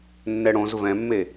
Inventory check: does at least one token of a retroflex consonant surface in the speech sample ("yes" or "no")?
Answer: yes